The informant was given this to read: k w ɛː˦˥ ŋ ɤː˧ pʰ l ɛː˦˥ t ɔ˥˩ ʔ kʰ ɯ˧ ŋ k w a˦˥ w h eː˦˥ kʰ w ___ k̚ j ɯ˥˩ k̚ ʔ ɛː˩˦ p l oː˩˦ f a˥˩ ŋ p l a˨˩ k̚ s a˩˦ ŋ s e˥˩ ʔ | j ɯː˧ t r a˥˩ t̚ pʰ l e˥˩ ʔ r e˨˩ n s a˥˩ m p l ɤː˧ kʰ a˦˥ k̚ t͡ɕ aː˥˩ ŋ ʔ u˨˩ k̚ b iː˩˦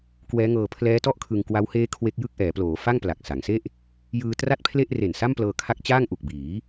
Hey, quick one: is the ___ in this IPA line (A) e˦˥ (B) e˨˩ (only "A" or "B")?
A